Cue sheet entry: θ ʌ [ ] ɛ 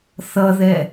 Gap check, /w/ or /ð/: ð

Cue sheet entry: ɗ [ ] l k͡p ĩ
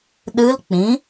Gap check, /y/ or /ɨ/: ɨ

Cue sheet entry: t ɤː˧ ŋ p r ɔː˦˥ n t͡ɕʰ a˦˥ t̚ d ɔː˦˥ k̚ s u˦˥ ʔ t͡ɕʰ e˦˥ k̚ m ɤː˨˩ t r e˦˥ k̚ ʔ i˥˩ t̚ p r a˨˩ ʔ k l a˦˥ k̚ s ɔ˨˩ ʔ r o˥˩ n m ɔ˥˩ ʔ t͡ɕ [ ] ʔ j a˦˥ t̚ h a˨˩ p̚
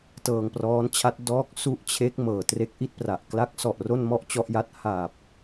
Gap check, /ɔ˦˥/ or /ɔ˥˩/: ɔ˦˥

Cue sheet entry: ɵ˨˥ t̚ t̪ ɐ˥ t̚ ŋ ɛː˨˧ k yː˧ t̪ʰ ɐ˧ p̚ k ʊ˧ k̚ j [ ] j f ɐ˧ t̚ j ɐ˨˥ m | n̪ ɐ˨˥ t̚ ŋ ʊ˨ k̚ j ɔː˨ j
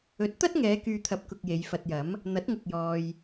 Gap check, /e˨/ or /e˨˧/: e˨˧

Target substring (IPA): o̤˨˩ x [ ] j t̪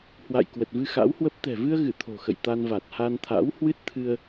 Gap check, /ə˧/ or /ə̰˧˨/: ə̰˧˨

